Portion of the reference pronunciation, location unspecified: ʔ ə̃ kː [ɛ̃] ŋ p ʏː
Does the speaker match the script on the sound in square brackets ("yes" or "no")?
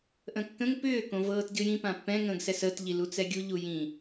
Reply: no